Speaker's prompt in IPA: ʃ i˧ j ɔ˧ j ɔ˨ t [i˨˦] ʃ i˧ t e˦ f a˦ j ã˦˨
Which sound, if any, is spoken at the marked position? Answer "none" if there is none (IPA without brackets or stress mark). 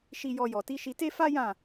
i˨˦